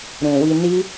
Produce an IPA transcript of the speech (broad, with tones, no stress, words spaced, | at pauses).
ɾũ˨wi˧ni˦